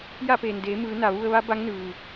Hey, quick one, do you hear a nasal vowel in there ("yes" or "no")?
no